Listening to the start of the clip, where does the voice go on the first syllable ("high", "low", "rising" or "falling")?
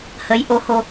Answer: rising